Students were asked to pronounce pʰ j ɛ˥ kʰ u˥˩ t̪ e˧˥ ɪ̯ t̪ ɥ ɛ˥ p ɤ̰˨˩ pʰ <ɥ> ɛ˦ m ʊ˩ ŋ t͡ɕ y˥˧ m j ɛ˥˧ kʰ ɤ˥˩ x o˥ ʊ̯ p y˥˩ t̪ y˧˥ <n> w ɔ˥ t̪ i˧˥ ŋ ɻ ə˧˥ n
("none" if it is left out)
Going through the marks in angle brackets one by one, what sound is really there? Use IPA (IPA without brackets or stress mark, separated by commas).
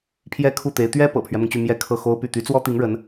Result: ɥ, t͡s